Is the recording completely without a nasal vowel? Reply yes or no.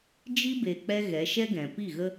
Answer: no